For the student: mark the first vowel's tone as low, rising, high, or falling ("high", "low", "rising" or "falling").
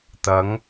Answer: rising